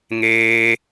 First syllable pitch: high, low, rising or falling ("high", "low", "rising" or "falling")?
high